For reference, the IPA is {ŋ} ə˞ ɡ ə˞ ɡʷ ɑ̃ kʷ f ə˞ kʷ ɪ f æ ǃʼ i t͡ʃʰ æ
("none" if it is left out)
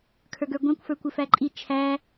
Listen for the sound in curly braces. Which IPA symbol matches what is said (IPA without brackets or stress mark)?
kʰ